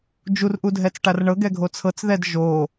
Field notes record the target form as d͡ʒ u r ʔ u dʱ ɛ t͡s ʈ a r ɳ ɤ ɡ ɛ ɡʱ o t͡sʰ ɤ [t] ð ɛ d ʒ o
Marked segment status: incorrect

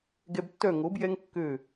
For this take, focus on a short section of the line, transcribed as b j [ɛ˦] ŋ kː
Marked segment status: correct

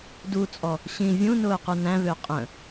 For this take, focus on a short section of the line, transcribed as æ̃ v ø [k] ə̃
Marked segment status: incorrect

